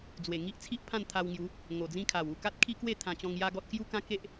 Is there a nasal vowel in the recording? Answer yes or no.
yes